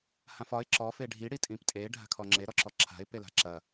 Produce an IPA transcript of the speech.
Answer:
h ã f ɒ ɪ̯ ǁ ɔ f e ɖʱ i ɽ i tʼ ĩ p tʼ e ɖʱ a̤ kʰ ɔ ŋ͡ǁ e ɾ ɔ ǁ ɔ ǁʰ a̤ ɪ̯ p e l a̤ ǁ ɐ

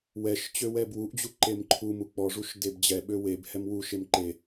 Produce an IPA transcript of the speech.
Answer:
w ɛ ʃ t͡ɕ ø w ɛ b w u ʔ d͡ʑ u ǃ e m ǃʰ u m u k͡p ɔ ʐ u ʃ d e b d͡ʑ ɛ ɓ ø w e b h ɛ m w u ʃ e m ǃ e

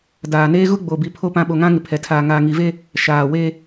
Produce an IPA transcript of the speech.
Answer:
d aː˨ n eː˦ ɣ ʊ˦ ɡ͡b o˨ b i˨ pʰ o˨ p ã˨ ɓ o˨ ŋ ã˦ ŋ ɪ˨ pʰ ɛ˨ tʰ aː˨ ŋ aː˨ ŋ i˨ v e˦ | ʃ aː˨ w e˦

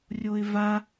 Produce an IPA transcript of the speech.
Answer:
rʲ o ɪ̯ v a

